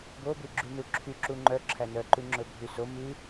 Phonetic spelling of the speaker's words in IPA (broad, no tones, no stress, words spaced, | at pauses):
bobʉɡ͡ǁynu ǁʰyǁu ŋ͡ǃœǁʰæ nœǃʉŋ͡ǁɵbʱy so mʉ